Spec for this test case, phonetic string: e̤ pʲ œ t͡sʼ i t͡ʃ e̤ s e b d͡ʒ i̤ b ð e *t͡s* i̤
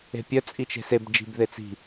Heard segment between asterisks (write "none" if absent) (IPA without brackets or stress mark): t͡s